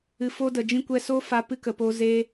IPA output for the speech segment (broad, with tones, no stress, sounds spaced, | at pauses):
ɨ˨ f o˧ d ə˨ d͡ʒ ĩ˧ kʷ ɛ˧ s o˦ f a˧ p ɨ˧ k ə˨ p o˦ z e˦